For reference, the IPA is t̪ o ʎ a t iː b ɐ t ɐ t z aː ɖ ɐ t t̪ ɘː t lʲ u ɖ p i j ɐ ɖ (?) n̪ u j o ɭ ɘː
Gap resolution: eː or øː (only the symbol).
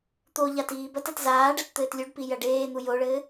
eː